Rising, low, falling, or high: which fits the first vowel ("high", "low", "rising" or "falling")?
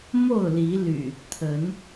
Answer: falling